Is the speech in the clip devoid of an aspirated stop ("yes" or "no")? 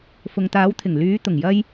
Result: no